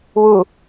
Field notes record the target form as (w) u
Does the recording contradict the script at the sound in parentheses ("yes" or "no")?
no